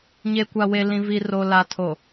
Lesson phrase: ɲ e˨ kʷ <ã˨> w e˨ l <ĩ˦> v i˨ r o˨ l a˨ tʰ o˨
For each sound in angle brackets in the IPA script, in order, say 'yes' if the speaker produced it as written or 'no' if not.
no, no

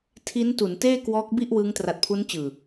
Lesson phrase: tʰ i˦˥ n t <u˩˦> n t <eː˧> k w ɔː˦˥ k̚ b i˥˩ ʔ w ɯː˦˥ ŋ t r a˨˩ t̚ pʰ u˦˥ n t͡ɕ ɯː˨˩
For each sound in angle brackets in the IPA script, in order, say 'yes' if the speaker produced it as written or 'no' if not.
yes, no

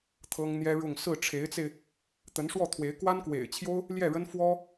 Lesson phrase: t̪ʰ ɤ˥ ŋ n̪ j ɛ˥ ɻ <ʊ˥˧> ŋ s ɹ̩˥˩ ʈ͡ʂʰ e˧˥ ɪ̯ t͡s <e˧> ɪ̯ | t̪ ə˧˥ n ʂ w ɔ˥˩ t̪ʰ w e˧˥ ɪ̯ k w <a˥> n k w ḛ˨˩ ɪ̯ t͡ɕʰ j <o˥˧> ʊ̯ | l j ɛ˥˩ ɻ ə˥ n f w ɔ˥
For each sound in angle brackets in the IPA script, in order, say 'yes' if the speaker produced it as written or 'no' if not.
yes, yes, yes, no

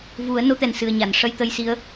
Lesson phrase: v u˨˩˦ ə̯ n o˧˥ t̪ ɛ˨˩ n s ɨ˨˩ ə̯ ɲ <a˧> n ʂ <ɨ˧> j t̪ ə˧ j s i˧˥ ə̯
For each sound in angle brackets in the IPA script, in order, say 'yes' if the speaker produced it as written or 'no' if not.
no, no

